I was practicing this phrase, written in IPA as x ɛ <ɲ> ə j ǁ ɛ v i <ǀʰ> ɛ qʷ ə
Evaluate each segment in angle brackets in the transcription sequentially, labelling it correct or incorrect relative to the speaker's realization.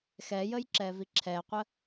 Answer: incorrect: j, incorrect: ǁʰ

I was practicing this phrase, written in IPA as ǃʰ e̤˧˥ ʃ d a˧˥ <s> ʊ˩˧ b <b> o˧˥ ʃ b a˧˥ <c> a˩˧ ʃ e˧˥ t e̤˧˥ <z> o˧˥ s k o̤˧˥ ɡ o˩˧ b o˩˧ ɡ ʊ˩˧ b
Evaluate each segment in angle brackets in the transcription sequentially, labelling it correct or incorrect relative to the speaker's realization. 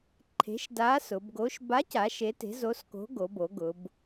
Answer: correct, incorrect: ɡ, correct, correct

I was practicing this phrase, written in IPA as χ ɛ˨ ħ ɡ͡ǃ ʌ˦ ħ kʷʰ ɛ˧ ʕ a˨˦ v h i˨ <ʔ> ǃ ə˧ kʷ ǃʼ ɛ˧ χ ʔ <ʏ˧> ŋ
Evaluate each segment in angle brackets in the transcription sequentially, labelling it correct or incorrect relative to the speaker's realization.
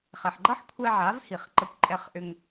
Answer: incorrect: χ, correct

